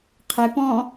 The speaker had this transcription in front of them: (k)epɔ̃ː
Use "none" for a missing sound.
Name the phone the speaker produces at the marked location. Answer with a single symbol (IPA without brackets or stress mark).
qʰ